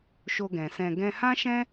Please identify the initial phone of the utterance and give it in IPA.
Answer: ʃ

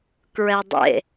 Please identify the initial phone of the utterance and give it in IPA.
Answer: k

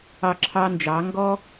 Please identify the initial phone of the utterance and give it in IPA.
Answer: ɑ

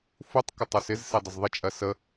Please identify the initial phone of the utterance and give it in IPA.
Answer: f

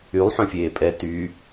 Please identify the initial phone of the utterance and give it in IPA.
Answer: y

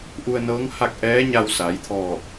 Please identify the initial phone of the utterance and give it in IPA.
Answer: ʔ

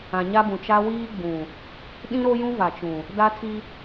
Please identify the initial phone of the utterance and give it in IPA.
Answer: ã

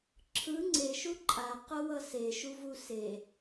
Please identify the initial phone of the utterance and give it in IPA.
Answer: ǁʰ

